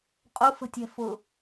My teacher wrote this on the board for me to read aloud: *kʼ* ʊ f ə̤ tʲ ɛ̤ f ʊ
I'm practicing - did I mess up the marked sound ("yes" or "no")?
yes